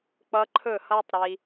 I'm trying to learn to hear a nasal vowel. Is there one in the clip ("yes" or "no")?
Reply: no